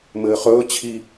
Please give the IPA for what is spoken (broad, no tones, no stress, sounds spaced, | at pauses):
m ɘː χ ɵː t͡ɕʰ i